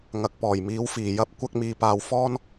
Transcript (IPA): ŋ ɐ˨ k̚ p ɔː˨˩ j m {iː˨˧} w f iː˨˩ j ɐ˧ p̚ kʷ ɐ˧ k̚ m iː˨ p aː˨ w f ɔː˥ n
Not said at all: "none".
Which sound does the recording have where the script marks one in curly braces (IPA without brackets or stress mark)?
iː˨˧